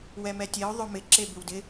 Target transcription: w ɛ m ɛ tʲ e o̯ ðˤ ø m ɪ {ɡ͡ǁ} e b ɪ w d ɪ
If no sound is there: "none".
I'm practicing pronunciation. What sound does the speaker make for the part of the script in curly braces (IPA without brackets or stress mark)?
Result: ǁ